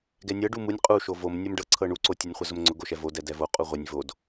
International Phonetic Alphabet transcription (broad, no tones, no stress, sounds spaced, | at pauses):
ɡ ɛ nʲ ɤ ɖ u m u nʲ qʼ u ʃ o v o m nʲ o m ɖ ɤ ǀʰ ɤ ɳ u ǀ o tʲ u nʲ χʷ ɛ z ʊ m ŋ͡ǀ ʊ ɡ o ʃ ɛ v o d ɛ d ɛ v o qʼ u ʁʷ ɛ nʲ v o d